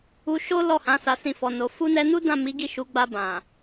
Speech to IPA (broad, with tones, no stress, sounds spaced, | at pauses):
u˧ ʃ o˦ l ɔ˦˨ h ã˨˦ s a˧ s ĩ˧ f ɔ˨ n o˨ f u˧ n ɛ˧ n u˦ d ã˦˨ m i˨˦ ɡ i˦˨ ʃ u˨˦ ɡ͡b a˧ b ã˨